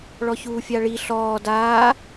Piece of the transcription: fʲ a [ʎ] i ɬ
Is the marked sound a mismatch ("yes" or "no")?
yes